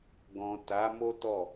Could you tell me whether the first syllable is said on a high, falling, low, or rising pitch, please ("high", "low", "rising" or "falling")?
low